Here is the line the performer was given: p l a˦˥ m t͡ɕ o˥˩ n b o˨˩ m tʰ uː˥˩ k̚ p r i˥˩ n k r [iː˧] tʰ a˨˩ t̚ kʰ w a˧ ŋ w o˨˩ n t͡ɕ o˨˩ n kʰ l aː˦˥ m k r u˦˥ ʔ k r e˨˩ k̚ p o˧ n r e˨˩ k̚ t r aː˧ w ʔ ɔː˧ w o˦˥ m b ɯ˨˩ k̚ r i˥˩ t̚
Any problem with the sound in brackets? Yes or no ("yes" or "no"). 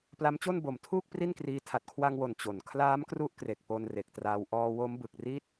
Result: no